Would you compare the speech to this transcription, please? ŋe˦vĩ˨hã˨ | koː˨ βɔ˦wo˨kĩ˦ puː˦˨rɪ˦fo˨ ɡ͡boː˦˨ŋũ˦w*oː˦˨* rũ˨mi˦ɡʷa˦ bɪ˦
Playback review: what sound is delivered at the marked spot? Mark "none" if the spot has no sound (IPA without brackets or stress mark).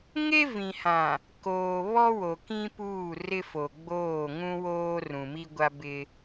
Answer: oː˦